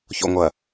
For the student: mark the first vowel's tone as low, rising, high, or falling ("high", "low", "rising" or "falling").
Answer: low